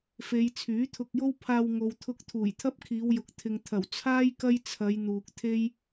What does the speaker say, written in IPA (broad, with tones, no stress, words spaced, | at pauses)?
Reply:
fe˨˧j t͡sʰyː˨˥t̪ʰʊ˧k̚jo˥w pʰaː˧wŋo˨wt̪ʰʊ˧k̚ t̪ʰuː˨˩jt̪ʰɐ˥p̚kʰiː˨˧wjʊ˨k̚ t̪ʰɪ˨ŋ t̪ʰɐ˨˩wt͡sʰaː˥j kɐ˥jt͡sʰɐ˨˧j n̪uː˨k̚t̪ʰe˥j